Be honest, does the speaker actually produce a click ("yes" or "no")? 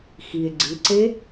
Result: yes